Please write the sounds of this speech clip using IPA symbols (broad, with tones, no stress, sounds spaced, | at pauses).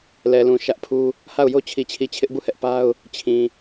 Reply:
l ɛ˨ l ũ˨ ʃ ä˦ ʔ pʰ u˦ | h a˦˨ ʊ̯ j o˦ t͡ɕʰ i˨ t͡ɕʰ i˨ t͡ɕʰ ɪ˦ ʔ b u˦˨ h ɛ˦ ʔ p a˦ ʊ̯ | t͡ɕʰ ĩ˨